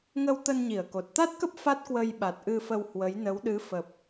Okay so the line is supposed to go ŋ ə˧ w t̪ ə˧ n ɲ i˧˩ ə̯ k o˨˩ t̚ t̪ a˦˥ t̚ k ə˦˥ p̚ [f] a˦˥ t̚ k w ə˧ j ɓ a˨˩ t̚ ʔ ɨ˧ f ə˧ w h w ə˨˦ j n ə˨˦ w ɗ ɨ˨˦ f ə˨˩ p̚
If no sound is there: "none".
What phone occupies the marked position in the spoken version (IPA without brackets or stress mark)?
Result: f